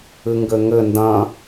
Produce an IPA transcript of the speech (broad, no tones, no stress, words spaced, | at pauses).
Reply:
ɨŋɡɘŋɘ ndɐ̃